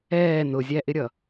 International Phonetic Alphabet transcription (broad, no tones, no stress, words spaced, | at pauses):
ɛː nʊzʲæʔɪɾʲʌ